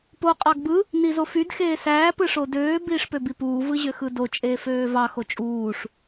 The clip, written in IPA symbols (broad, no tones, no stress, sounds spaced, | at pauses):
p o qʼ ɑ ɡ b ɯ | n i z o f y d x eː s æː p ɯ ʂ o d øː b iː ʂ p ø b i p uː v ɯ ʑ ø x ɯ d o t͡ʃʼ eː f øː v ɑ x o t͡ʃʼ uː ʂ